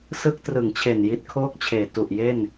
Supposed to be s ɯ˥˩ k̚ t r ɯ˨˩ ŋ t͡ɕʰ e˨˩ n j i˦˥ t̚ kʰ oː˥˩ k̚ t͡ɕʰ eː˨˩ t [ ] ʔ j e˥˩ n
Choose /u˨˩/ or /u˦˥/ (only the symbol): u˨˩